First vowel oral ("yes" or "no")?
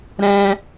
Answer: no